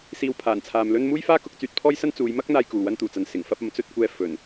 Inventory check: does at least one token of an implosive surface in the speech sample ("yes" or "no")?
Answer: no